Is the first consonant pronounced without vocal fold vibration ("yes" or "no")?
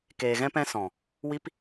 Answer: yes